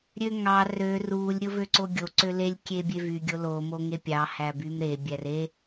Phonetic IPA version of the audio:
ɾʲ ø ŋ ɑ r ø r u lʲ ɾʲ o v ø ǀ o ɡʲ o ǀ ø l e lʲ kʲ e bʲ e v y ɡʲ o l o m o ŋ e pʲ ɑ h æ b y m ɾ e bʲ æ r e

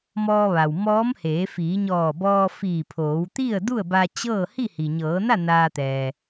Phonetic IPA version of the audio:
m ɔː˧ ʋ a˩ w m ɔː˧˥ m h eː˩˧ f iː˩˧ ɲ ɔː˧˩ b ɔː˧ f iː˧˩ pʰ oː˩˧ w t̪ i˥˨ ə̯ d u˥˨ ə̯ b a˧ t͡ɕ ɤː˥˨ h i˥˨ h i˩ ɲ ɤː˩˧ n a˥˨ n aː˧ t̪ ɛː˩

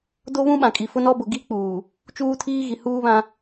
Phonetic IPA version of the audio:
d o˦ β ũ˦ ɓ ã˨ kʼ i˨ f ʊ˦ n ɔ˦ b ʊ˨ ɡ i˦ k͡p uː˨ | t͡ʃ uː˦ tʰ iː˦ ɣ i˨ h uː˦ β ã˦

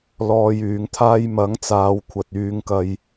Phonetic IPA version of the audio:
l ɔː˧ j yː˨˥ ŋ t̪ʰ aː˥ j m ɐ˨˥ ŋ t͡s aː˨˧ w kʷʰ ɐ˨ t̚ yː˧ ŋ k ɐ˧ j

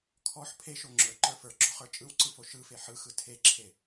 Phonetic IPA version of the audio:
kʰ ɔ ħ pʰ e ʃ o ŋ͡ǁ ə˞ ǃ ə˞ f ə˞ ɡ͡ǁ ɔ χ ə˞ t͡ʃʼ ɯ w ǀ ɯ f o ʃ ɯ f e ħ ɯ x ɯ tʰ e ǁʰ e

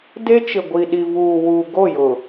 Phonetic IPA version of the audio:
d e˦ t͡ʃ ɪ˨ ɡʷ i˨ ɗ i˨ v uː˨ w u˨ ɡ o˦˨ j ʊ˨

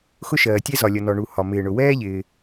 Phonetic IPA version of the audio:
x ʊ˥ ʃ ɜː˩ tʲ ɛ˥ z ɒ˩ lʲ ʌ˩ n ɔ˩ ɳ u˩ h ɒ˩ m ɪː˩ ɳ ʊ˩ w ɛː˥ ʎ ɪː˩

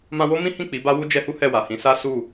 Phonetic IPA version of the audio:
m ã˧ w o˦ m ĩ˦ h ĩ˦˨ k͡p i˨˦ b a˦ w u˦ d͡ʒ ɛ˧ h u˦ h ɛ˦˨ w a˨ h ĩ˨˦ s a˦ s u˦˨

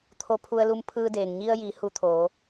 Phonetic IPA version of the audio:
t̪ʰ o˧ pʰ u˧ ə̯ l u˧ m pʰ ɯː˧ d eː˩ ŋ ɲ i˧ ə̯ j i˩˧ h u˧ t̪ʰ oː˩˧

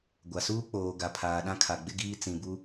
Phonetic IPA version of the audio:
ɡʷ a˨ s uː˦ k͡p oː˨ ɡ a˨ pʰ aː˨ ɗ ã˦ kʰ a˨ ɡ͡b ɪ˦ ɡ iː˦ t͡s ĩ˨ b u˦

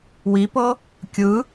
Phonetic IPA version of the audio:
w i p ɤ | kʲ ɯ

